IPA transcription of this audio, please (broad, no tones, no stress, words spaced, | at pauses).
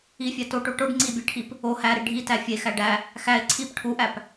ifʲæ toʈo ʈoɖ ŋ͡ǀibʲæʈʰip | o hæɾi ɖʱitæ fʲexæ ɖæ | xæɪ̯ ǀʰip ʈʰuʔæp